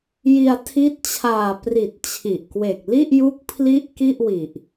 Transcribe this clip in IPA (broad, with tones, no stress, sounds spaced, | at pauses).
j i˧ a̯ tʰ i˦˥ t̚ t͡ɕʰ aː˨˩ p r i˨˩ t̚ t͡ɕʰ i˨˩ ʔ k w e˨˩ k̚ l i˥˩ ʔ j u˦˥ k̚ pʰ l i˥˩ ʔ k i˥˩ ʔ w i˨˩ ʔ